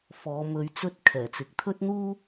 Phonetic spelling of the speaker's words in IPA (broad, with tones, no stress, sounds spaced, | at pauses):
f ɔː˨˧ m ɵ˨˧ ɥ t͡s ɵ˧ t̚ kʰ ɛː˨˩ t͡s ɪ˨˥ k̚ t̪ʰ ɵ˥ t̚ n̪ uː˥